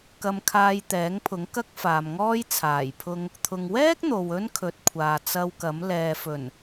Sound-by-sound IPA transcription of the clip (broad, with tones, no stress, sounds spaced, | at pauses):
k ɐ˧ m kʰ aː˧ j t̪ ɛː˨˥ ŋ pʰ ʊ˨˥ ŋ k ɐ˥ k̚ f aː˨ m ŋ ɔː˥ j t͡sʰ aː˨˩ j pʰ ʊ˧ ŋ | t̪ʰ ʊ˨ ŋ w ɛː˥ k̚ n̪ o˨ w ɵ˥ n kʰ ɵ˨˥ t̚ kʷʰ aː˨ t͡s ɐ˧ w k ɐ˨˥ m l ɛː˨ f ɵ˨˩ n